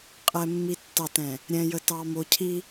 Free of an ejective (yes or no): no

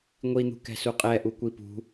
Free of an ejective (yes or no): no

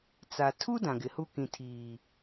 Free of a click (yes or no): yes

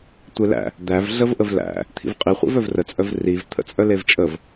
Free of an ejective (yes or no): no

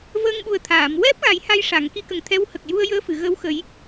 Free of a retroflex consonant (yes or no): no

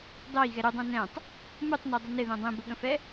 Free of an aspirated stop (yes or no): yes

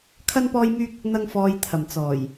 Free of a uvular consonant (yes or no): yes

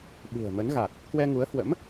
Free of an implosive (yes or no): no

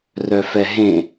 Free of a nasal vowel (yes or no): no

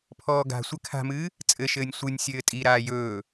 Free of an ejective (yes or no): no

